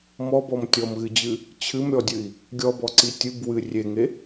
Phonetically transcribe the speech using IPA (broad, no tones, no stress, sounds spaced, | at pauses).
m ɔ b ɔ m tʲ ɔ m ɣ ɨ d͡ʑ ɨ | t͡ɕʰ ɨ m ɾʲ ɔ dʲ ɨ i̯ | ɡʲ ɔ b ɔ ǀ i tʲ ɨ b w ɨ rʲ e ŋ e